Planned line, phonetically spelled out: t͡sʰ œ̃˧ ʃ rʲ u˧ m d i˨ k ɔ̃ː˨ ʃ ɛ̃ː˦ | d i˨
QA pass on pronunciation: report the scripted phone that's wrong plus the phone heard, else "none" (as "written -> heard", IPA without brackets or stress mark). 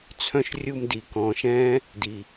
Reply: none